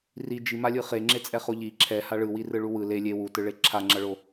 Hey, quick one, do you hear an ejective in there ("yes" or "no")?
yes